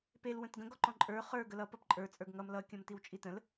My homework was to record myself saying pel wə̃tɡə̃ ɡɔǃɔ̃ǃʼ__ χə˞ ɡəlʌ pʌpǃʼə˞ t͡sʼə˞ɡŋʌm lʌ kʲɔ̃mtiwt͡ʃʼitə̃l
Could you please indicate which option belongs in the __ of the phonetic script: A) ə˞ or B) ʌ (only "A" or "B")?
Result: A